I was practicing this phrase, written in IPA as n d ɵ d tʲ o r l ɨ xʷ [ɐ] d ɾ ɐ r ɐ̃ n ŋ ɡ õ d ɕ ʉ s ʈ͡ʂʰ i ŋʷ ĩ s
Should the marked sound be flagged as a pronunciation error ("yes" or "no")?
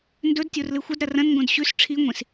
no